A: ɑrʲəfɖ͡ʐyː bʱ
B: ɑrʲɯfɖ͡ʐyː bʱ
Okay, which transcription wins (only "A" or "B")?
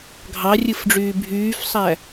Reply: B